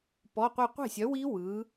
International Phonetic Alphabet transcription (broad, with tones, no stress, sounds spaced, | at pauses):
p ɔ˧˥˧ qʷ i˥˧ qʷ e̤˥˩ sʲ œ˨˥ w i˦˥ w ɯ˨˥